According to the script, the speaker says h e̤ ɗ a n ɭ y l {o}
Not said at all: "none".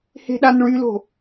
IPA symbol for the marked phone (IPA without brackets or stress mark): o̤